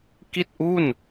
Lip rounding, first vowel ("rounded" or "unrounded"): unrounded